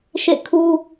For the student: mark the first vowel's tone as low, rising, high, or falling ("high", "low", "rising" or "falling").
falling